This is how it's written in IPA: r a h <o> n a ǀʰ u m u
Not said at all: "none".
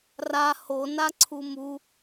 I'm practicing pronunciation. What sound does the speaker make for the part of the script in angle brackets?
o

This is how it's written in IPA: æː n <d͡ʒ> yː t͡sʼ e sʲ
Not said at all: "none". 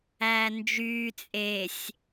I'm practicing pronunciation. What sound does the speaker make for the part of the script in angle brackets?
d͡ʒ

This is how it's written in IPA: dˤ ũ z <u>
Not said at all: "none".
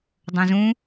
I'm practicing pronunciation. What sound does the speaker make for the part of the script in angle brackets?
ũ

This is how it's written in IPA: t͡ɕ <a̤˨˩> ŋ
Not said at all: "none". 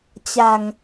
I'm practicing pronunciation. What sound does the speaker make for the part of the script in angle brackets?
a̤˨˩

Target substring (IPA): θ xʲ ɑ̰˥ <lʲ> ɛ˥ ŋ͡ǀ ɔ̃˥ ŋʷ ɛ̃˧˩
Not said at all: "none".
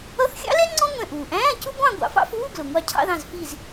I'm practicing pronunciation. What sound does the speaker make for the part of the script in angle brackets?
l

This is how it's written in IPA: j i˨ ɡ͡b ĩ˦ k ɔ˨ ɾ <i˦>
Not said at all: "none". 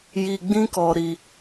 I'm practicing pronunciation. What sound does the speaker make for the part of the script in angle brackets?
i˦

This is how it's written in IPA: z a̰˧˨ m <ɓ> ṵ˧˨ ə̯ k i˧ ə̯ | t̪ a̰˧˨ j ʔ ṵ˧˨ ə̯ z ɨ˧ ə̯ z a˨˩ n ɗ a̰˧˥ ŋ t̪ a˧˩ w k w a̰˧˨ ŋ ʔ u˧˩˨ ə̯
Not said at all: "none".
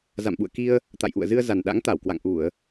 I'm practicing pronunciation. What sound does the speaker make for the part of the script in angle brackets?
ɓ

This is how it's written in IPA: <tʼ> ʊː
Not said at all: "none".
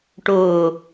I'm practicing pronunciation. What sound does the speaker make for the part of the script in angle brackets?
ʈ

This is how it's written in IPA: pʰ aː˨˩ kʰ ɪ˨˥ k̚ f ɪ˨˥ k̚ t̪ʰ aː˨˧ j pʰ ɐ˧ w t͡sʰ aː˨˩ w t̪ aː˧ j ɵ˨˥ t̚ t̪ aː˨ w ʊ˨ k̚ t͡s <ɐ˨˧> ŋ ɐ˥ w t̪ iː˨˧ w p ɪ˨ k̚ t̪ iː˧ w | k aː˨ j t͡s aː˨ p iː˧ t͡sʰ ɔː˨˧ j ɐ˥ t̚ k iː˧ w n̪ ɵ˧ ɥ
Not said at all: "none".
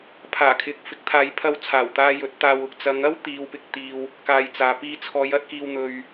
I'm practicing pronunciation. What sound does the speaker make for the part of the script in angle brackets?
ɐ˨˧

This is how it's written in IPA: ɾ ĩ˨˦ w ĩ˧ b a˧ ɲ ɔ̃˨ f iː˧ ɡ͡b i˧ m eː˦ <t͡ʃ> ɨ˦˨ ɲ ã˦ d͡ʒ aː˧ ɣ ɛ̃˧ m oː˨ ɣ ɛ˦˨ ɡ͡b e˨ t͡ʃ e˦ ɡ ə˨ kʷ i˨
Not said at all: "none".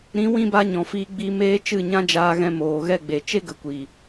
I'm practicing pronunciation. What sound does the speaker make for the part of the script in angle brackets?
t͡ʃ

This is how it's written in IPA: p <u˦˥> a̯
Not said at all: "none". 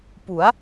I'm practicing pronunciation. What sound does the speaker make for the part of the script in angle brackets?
u˩˦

